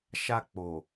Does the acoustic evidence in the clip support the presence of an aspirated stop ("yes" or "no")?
no